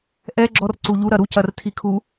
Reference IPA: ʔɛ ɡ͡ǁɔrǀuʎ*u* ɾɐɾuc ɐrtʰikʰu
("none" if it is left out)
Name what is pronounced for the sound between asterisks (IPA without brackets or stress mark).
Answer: u